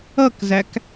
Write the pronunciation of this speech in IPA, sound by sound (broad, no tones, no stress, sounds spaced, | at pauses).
ʌ k z æ k